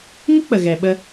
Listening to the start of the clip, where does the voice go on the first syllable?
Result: high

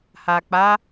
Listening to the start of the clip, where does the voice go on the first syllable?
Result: low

